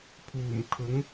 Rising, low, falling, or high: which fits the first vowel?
low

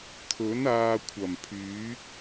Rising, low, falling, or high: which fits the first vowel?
rising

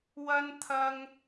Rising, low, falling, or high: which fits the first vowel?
high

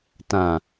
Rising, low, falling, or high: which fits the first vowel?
low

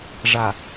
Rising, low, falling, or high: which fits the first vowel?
low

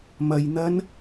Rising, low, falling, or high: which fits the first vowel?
low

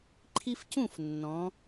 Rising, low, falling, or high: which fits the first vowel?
high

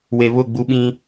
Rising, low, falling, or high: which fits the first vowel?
low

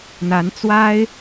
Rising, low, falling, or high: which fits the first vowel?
rising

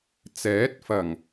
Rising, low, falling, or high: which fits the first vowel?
rising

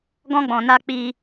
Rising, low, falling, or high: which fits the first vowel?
high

